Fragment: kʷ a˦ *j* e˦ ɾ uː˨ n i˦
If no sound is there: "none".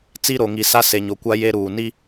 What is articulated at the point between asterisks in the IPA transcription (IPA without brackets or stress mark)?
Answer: j